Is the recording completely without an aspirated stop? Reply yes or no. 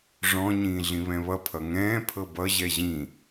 no